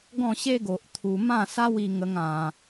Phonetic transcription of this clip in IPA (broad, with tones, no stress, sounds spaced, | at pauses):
ɡ ɔ̃˥˧ ɕ e˦ ɡ o˨ ʔ t̪ʰ u˧ m ã˥˧ s a˦ w i˧ ŋ ə˧ ŋ ã˧